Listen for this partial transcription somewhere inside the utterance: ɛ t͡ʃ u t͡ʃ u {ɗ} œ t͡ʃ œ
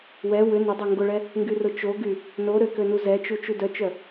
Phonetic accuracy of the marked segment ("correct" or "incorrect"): incorrect